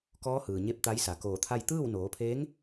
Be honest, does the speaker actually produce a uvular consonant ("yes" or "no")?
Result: no